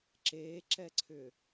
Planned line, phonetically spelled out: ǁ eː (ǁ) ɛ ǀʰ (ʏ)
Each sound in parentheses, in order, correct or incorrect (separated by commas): correct, correct